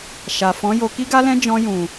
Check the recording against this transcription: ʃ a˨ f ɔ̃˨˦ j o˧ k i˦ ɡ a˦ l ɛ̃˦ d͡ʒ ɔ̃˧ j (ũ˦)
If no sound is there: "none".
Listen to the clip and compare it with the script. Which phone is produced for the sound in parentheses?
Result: ũ˨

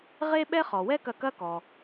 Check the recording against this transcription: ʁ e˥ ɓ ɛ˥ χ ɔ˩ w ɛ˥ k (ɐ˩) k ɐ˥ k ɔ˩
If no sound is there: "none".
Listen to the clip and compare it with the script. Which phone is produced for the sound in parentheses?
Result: ɐ˧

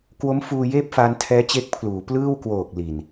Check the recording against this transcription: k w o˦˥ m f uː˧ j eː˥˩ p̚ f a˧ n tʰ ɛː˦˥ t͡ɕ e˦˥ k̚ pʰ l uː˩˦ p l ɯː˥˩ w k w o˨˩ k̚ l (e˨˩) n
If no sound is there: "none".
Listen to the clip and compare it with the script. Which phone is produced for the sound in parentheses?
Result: i˨˩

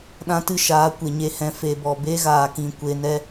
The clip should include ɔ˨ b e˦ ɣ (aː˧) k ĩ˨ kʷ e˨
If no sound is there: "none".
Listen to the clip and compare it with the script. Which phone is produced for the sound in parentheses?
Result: aː˨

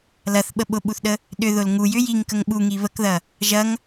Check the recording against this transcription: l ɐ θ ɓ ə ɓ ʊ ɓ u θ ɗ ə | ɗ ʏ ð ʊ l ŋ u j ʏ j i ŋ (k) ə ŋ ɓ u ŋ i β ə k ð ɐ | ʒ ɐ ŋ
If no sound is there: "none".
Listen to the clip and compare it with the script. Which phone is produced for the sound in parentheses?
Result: k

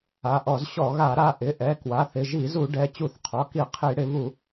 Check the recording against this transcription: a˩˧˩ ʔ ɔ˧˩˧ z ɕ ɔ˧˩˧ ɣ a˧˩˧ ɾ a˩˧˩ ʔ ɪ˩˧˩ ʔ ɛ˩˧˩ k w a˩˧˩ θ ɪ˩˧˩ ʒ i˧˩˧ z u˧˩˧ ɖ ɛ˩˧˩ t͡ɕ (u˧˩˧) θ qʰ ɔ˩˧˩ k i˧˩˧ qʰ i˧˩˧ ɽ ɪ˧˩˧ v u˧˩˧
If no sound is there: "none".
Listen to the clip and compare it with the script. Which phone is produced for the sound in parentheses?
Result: u˧˩˧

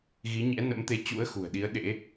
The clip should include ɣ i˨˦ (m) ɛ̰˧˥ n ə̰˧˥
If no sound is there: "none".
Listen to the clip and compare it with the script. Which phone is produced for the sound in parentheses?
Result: ɲ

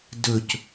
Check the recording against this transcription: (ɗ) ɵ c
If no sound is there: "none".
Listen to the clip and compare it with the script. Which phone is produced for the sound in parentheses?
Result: d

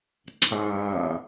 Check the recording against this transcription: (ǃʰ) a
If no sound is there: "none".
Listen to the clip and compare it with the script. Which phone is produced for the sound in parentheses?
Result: ǀʰ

